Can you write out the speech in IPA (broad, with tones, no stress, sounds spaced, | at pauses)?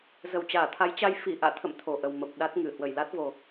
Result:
z ə˧˩ w t͡ɕ aː˧˩ t̪ʰ a˨˦ j t͡ɕ a˧ j f i˧˩ ʔ a̰ː˧˨ t̪ʰ ə̰˧˨ m t̪ʰ o˨˩ ʔ ə˨˩ w m ə˨˩ p̚ ɗ a˦˥ t̚ ŋ ɨ˧˩ h w ə˧˩ j l a˦˥ t̚ v o˨˩